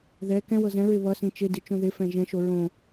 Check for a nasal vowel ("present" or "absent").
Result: present